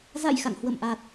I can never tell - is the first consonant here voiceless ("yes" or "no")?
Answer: no